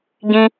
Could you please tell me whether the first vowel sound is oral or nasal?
nasal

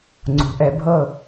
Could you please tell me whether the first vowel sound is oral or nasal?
oral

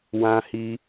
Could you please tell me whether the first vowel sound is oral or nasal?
nasal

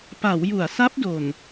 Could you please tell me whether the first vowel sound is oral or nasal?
oral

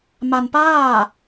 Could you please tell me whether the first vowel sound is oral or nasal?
oral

